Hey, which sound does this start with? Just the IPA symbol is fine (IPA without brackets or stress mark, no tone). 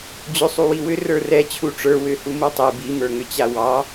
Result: d͡ʑ